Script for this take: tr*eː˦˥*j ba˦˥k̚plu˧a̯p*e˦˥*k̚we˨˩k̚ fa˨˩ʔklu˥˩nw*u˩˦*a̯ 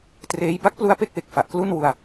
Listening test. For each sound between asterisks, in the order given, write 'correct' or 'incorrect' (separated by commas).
correct, incorrect, incorrect